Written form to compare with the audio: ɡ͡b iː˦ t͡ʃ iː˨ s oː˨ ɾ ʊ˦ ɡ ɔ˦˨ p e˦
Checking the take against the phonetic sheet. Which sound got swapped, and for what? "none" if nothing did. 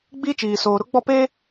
ɡ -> ɡ͡b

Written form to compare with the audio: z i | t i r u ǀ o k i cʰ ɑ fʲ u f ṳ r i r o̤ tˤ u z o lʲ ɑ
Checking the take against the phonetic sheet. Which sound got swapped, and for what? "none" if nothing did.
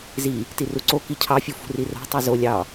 none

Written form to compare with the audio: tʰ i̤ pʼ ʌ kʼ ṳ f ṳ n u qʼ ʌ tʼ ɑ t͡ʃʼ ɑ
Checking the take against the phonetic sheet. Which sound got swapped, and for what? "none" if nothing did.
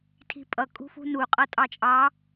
none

